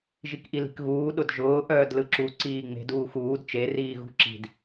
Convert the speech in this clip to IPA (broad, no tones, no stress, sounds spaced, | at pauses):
ʒ i k ʔ i l i̤ k ɣ uː ɗ ʊ d ʒ ʊː ʔ œː d l ɯ ǁ u ǀ iː ŋ͡m e̤ d uː x uː d t͡ʃ e r iː ɣ ṳ ǁ i̤ d